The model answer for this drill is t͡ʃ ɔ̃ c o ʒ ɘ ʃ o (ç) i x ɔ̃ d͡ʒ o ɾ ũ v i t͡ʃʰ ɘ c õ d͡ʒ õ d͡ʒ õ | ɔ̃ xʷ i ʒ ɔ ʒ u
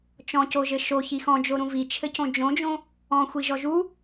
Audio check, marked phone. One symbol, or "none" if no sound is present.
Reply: ç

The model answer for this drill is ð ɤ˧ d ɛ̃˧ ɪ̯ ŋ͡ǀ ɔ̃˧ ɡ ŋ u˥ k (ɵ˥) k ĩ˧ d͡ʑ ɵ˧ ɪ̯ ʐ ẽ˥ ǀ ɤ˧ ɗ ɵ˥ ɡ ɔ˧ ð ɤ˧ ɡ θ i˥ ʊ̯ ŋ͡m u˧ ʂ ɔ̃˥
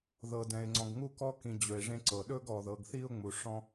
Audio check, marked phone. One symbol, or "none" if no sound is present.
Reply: ɔ˥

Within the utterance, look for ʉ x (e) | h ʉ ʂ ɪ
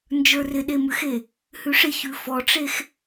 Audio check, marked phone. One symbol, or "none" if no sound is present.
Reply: e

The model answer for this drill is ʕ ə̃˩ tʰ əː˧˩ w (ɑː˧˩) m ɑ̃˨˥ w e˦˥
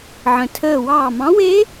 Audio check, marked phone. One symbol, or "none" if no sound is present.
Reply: ɑː˧˩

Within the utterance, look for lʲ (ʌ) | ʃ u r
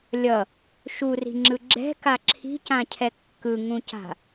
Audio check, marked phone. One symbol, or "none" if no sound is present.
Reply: ʌ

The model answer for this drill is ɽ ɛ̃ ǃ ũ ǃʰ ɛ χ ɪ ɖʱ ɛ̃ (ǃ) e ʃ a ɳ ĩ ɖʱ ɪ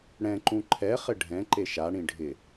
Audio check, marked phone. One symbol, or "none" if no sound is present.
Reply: ǃ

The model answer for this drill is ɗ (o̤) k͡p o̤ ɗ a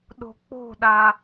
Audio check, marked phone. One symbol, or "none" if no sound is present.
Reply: o̤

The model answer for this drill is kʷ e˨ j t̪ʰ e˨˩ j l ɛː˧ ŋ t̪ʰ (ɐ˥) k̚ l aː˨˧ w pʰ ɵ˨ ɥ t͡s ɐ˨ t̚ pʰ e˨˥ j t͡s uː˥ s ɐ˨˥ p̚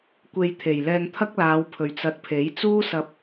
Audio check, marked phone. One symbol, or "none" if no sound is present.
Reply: ɐ˥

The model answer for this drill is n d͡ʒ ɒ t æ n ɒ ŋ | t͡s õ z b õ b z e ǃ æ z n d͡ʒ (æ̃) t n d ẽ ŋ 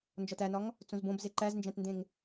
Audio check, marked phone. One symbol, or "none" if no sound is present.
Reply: æ̃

